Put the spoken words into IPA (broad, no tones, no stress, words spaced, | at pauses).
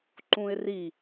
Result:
ǃũɪ̯ri